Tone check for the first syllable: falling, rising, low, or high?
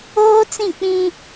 high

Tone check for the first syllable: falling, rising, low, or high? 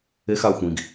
high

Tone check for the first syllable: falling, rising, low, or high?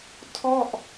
falling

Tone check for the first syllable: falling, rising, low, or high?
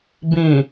low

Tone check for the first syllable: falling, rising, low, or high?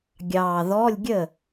low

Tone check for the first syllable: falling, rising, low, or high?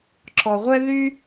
low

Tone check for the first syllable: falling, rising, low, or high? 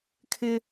high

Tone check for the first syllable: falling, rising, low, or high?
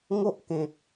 high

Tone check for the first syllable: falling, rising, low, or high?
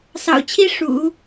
low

